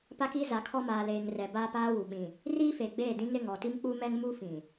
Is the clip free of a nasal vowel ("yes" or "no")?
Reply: no